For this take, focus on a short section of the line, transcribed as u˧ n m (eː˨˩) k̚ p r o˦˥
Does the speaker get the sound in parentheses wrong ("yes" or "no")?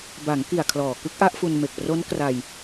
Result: yes